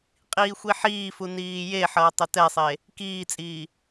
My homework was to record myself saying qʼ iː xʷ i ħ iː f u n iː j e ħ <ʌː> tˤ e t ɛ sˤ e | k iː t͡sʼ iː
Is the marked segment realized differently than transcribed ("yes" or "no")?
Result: no